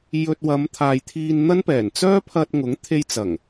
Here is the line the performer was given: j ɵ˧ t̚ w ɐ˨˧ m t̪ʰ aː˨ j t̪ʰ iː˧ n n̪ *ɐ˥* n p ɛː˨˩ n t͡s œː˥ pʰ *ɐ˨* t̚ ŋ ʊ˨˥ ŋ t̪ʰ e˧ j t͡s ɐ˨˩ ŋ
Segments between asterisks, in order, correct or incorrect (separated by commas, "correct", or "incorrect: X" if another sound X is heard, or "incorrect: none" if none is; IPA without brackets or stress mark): correct, incorrect: ɐ˧